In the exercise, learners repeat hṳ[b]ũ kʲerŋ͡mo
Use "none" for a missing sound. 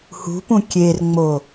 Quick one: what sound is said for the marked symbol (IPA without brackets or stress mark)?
p